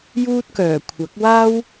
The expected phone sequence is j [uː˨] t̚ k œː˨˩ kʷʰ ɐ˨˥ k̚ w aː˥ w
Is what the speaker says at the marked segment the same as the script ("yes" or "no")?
no